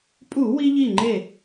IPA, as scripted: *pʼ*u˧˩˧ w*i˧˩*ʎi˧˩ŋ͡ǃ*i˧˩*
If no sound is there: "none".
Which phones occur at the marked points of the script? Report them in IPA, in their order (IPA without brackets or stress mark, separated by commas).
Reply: pʼ, i˧, e˧˩